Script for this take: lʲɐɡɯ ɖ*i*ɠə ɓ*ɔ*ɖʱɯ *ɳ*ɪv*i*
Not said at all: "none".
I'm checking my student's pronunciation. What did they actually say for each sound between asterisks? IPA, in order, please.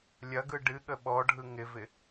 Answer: ɨ, ɔ, ŋ, ɪ

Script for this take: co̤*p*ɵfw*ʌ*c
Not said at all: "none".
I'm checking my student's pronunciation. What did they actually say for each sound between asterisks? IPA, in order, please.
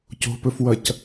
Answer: p, ʌ

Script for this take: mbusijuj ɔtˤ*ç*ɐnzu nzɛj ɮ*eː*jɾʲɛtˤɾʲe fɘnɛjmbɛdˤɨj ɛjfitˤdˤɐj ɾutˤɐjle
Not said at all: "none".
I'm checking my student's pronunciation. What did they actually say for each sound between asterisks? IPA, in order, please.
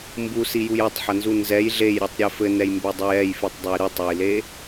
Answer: ħ, e

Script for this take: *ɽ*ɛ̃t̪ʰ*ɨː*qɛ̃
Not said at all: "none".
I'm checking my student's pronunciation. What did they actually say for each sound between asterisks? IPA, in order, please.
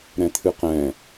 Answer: ɾ, ɨ

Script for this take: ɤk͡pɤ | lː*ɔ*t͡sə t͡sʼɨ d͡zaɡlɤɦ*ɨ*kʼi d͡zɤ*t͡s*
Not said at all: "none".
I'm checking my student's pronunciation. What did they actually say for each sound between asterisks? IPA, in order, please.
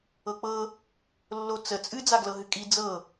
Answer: o, ɨ, none

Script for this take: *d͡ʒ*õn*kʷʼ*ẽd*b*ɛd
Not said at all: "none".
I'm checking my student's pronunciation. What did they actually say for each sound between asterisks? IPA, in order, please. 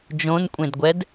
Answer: d͡ʒ, kʷʼ, ɡʷ

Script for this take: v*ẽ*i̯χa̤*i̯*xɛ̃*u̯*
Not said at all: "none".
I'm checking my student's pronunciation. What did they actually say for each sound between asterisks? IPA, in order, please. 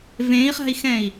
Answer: ẽ, i̯, i̯

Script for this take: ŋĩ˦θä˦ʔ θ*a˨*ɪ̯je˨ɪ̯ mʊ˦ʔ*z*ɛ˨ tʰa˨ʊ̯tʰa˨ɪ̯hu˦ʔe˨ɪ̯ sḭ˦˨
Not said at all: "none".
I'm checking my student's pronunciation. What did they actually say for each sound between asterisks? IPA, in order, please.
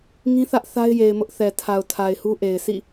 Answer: a˦, θ

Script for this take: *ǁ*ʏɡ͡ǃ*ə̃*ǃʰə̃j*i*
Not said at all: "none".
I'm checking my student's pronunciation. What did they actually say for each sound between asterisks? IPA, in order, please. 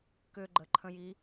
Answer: k, ə, i

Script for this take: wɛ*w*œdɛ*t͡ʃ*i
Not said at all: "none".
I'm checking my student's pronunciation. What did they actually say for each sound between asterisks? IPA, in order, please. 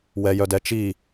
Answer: j, t͡ʃ

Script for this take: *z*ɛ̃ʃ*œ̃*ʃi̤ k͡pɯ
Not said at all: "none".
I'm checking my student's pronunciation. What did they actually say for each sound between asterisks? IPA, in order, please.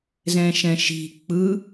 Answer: z, ɛ̃

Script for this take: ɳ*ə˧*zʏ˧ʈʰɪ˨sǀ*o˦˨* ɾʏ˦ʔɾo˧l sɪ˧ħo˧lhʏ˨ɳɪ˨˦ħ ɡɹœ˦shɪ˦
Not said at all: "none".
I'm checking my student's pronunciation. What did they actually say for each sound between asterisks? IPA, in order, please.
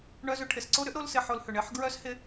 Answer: œ˧, o˦

